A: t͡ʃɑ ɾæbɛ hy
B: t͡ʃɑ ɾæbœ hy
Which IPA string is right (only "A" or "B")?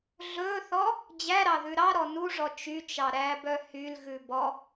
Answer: B